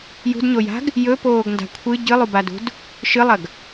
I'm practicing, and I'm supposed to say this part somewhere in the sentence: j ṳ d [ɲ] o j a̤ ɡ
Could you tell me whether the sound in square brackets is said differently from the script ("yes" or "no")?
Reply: no